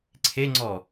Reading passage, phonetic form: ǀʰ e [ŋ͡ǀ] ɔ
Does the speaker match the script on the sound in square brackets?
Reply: yes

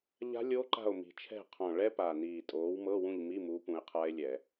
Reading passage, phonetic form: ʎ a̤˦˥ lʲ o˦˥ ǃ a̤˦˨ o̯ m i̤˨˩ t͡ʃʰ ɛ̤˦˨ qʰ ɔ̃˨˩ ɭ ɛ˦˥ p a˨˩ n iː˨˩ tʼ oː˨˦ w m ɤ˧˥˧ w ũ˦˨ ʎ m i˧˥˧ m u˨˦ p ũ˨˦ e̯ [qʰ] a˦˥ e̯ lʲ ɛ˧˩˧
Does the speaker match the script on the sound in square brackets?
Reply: yes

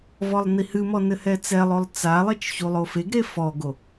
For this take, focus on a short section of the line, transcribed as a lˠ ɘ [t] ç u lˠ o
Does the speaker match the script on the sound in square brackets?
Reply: no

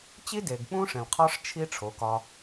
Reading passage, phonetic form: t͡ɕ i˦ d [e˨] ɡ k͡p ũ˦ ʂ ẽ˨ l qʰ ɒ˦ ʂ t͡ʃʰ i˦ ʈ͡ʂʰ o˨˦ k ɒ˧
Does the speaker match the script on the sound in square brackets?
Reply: yes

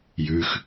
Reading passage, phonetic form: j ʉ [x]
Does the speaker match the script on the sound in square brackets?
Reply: yes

